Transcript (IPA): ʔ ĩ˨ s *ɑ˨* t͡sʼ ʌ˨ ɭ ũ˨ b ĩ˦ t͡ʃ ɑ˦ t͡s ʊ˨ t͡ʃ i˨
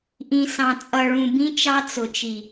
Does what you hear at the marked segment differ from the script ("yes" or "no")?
yes